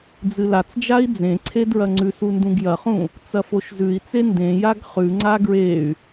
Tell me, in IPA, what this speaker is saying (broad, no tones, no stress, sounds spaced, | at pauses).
d͡z ɨ l a t͡s d͡ʒ a i̯ d͡z ẽ ǀʰ e d ɹ ɐ ŋ͡ǀ ʉ s u n d ũ ɡ j ɐ χ ũ | t͡s ɐ f o ʃ z ʉ i̯ t͡s e n d ẽ j a ɡ χ ʉ ŋ͡ǀ a ɡ ɹ e y̯